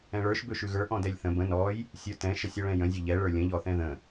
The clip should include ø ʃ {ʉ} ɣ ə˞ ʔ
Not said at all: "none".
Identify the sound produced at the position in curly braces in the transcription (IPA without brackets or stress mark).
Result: ʉ